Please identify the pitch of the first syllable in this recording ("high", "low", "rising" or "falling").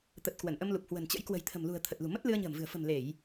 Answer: low